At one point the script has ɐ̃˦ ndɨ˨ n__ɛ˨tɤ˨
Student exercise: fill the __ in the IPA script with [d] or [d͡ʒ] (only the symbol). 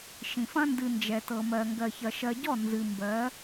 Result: d͡ʒ